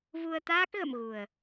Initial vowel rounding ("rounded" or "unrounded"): rounded